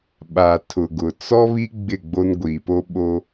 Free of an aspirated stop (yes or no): no